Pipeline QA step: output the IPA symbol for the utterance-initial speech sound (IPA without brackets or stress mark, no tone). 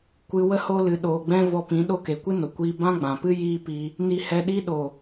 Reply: kʷ